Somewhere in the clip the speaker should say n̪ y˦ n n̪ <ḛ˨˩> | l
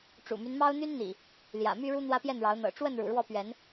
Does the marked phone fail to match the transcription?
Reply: yes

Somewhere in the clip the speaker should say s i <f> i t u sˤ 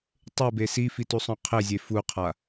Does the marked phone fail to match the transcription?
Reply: no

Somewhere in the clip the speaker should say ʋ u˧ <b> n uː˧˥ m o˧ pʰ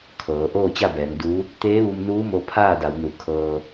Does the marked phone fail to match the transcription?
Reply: yes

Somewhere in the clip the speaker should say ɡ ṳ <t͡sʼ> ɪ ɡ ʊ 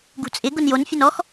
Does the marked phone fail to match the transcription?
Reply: no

